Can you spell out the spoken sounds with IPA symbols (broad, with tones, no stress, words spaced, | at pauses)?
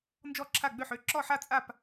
nd͡ʒɔ˥˨ǁʰa˥˨ɡ͡bø˥˨ħø˥˨ ǁɔ˥˨ħa˥˨ t͡sʼa˥˨p